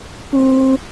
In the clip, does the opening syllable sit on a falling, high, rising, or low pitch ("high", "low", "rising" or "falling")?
high